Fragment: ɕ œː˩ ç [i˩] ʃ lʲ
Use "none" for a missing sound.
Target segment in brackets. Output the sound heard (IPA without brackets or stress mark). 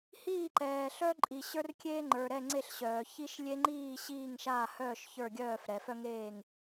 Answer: i˦